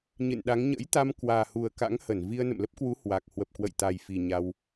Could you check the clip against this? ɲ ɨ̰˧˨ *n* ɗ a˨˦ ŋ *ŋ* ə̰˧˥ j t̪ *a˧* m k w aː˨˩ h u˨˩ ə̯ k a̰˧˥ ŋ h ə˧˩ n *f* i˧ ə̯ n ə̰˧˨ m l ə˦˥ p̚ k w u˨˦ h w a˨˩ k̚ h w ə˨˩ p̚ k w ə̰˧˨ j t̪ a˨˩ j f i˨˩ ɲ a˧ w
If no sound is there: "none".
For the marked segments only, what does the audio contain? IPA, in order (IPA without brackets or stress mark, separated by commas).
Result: n, ɲ, a˧, v